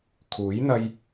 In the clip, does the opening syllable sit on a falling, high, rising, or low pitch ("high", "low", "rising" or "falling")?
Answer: rising